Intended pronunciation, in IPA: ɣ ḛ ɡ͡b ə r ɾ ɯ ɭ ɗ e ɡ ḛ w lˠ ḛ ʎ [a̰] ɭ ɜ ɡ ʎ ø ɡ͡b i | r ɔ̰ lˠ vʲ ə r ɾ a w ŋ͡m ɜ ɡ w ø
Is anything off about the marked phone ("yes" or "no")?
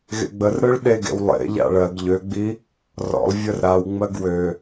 no